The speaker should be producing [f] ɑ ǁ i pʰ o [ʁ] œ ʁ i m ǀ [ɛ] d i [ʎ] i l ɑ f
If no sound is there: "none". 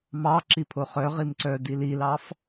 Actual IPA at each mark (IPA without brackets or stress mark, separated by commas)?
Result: m, χ, œ, l